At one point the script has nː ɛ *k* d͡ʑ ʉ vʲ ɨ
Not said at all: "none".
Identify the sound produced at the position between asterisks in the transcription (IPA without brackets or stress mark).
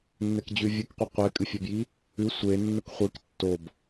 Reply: k